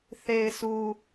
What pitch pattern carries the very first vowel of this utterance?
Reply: low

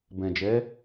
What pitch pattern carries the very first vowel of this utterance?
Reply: low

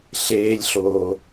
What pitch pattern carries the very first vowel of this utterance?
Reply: low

